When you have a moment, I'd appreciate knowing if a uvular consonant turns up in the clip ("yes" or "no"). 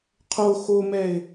yes